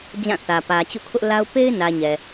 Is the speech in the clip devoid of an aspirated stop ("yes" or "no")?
no